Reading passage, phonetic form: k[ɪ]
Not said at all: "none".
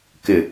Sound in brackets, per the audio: ɪ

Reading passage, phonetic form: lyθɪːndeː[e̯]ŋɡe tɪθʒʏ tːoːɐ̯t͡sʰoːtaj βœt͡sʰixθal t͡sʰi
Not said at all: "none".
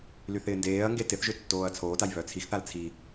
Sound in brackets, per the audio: ɐ̯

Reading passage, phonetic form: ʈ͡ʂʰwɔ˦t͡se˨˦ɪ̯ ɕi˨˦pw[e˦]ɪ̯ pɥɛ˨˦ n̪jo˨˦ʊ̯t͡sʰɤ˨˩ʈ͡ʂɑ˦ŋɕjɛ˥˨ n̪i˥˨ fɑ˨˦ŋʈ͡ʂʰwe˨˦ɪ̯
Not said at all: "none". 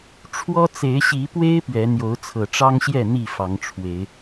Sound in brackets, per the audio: e˦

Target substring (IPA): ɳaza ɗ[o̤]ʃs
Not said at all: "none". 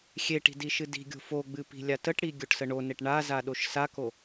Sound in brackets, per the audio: o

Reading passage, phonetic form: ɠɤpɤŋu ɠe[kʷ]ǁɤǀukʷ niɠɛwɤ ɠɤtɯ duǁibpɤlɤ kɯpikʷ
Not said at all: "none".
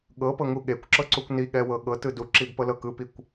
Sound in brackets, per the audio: kʷ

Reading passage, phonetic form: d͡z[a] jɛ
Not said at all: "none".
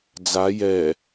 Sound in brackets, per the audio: a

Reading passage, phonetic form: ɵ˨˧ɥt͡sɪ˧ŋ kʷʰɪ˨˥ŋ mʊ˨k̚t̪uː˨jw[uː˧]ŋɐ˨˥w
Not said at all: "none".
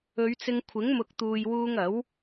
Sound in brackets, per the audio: uː˧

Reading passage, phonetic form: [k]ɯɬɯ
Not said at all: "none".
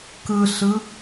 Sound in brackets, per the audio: k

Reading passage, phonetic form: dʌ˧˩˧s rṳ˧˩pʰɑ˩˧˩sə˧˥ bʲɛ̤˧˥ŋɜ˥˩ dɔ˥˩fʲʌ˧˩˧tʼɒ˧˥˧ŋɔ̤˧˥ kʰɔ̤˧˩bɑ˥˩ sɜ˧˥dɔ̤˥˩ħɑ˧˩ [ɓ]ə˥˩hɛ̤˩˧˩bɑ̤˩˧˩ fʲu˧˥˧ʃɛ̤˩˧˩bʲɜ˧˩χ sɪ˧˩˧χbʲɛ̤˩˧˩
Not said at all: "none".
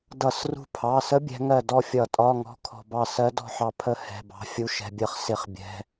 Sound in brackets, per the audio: pʰ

